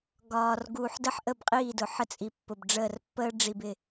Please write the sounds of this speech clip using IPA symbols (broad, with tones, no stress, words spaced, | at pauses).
ɡɒː˨r ɡuː˨ħdə˦ħ ʔə˦˨bqʼiː˦˨dʊ˨ħə˦ t͡sʼi˨pːʊ˨bɖ͡ʐəː˦˨r pːəː˦ɖ͡ʐi˨bɪ˨